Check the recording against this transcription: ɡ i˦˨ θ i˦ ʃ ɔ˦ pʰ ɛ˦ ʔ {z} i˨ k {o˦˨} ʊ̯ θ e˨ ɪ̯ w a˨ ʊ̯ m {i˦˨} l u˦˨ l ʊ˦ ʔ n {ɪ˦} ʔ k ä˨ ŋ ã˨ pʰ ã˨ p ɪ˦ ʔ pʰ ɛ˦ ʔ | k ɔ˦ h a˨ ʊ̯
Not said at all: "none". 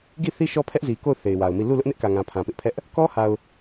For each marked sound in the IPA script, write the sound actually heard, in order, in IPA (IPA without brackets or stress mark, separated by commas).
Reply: z, o˦˨, i˦˨, ɪ˦